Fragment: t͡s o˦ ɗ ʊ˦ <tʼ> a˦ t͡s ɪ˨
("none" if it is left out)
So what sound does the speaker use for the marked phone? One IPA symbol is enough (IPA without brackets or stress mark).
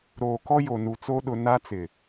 n